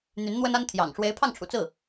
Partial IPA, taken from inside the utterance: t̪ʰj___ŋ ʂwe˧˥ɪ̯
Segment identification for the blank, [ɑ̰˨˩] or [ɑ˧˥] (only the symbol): ɑ̰˨˩